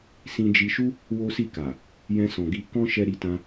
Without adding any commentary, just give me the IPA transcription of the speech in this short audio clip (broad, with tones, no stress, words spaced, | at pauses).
sĩ˧d͡ʒi˧ʃu˦ | wo˦si˦˨ka˨ | jɛ̃˧sɔ̃˨ɡi˧ kɔ̃˦ʃɛ˧ ɾi˧tã˧